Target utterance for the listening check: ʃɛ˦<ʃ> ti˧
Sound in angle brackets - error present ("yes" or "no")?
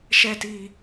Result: yes